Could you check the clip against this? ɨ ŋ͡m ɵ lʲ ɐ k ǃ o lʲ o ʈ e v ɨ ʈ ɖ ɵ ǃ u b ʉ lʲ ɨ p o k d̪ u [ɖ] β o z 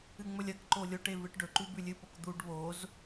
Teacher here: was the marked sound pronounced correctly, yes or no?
yes